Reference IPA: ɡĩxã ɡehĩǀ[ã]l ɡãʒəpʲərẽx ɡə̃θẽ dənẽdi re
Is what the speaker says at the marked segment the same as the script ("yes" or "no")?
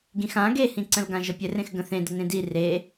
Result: no